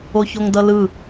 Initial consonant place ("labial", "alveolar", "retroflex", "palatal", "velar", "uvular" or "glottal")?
palatal